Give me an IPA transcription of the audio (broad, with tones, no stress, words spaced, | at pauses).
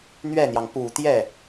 n̪ɥɛ˥˩n̪jɑ˩ŋ pu˨˩t̪jɛ˥˩